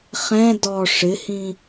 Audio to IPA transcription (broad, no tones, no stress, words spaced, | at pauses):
χɛ̃ dɔ ʂɪhĩ